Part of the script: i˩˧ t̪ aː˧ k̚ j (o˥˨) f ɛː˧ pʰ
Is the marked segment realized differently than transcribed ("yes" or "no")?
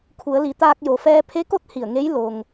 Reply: yes